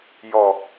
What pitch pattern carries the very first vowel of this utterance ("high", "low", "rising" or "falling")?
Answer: low